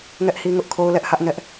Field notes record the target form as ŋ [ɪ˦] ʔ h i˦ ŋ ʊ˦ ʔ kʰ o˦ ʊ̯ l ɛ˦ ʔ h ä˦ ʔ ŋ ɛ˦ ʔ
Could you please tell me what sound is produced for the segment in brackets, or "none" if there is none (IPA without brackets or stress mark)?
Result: ɛ˦